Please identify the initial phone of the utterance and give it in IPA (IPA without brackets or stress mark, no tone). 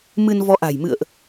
m